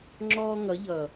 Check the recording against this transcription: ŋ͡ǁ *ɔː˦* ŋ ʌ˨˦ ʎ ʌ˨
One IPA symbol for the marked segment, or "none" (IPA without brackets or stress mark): ɔː˦